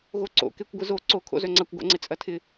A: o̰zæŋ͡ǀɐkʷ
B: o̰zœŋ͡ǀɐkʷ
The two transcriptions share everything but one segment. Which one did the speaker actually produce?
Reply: B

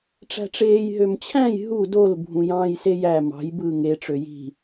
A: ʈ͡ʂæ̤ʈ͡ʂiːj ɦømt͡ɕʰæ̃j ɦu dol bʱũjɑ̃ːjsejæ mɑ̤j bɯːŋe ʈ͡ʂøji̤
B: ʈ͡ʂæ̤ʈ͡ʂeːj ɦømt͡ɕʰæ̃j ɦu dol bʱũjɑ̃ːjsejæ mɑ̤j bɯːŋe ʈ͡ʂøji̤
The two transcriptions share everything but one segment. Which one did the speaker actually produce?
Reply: B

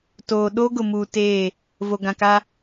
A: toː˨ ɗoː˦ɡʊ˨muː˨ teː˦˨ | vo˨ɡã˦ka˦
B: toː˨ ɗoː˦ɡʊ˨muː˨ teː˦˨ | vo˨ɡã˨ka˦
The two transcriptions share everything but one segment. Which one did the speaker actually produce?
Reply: B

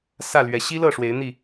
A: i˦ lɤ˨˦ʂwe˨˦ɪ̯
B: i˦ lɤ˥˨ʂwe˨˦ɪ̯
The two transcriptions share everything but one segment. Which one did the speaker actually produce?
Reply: B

